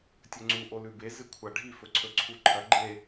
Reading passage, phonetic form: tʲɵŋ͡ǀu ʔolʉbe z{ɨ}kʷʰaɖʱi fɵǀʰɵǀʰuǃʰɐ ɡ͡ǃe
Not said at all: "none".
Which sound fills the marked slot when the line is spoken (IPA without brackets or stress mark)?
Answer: ɨ